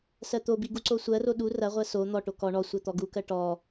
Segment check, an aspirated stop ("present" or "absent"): absent